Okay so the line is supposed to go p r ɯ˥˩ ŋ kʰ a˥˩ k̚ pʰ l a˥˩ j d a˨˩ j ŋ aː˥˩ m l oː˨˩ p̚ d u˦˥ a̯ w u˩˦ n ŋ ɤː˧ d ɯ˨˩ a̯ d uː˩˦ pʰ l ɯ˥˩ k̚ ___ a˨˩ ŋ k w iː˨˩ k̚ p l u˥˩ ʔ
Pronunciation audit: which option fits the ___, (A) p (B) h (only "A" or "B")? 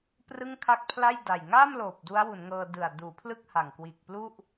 B